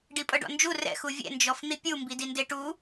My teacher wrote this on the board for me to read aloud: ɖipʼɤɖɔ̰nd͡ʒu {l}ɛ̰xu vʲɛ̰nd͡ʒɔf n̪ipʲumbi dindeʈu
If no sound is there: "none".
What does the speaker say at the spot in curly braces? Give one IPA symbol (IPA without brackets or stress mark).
r